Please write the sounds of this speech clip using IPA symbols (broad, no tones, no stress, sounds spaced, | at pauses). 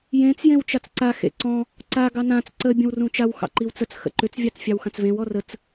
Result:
j ẽ t͡s j ẽ w t͡ʃ a t͡s ǀ a x ḛ ǀ ɔ̃ | ǀ a ɡ ɑ n ã t͡s ǀ ə bʲ ə̃ w r ũ t͡ʃ a w x ɑ̰ ǃ i w t͡s ə t͡s x ə̰ ǃ ʏ t͡s vʲ ɑ t͡s fʲ ɑ w x ã t͡s v ẽ w ɔ r ə t͡s